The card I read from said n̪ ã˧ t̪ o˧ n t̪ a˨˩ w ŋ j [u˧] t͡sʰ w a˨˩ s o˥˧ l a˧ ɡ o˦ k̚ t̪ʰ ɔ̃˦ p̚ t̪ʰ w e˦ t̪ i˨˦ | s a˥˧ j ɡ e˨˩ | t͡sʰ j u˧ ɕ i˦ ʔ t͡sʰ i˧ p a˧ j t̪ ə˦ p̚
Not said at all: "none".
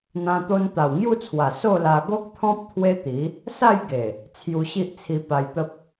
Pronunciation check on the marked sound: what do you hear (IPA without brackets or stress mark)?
u˥˧